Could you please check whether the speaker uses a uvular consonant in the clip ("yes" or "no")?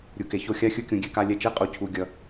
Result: yes